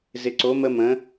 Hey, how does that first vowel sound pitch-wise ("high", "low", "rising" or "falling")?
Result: rising